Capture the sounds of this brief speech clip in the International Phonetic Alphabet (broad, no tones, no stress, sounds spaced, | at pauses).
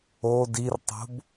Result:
o d i r tˤ o̤ b